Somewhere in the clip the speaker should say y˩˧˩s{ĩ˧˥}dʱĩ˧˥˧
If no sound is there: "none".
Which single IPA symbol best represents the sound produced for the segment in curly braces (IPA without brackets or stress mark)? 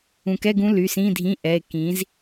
ĩ˧˥˧